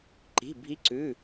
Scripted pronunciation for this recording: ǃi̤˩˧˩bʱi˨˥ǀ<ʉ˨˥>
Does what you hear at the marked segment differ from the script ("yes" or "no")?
yes